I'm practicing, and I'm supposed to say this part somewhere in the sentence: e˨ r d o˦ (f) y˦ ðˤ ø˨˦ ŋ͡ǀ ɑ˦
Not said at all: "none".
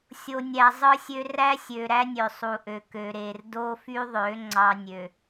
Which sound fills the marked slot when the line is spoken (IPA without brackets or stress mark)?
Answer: f